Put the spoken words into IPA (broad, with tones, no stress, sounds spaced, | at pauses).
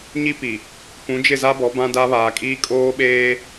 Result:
ɲ i˦ p i˨ | p ũ˨˦ d͡ʒ ɪ˦˨ z a˦ b ɔ˨˦ b ã˦ d a˦ β aː˨ kʼ iː˦ kʼ oː˦ ɓ eː˦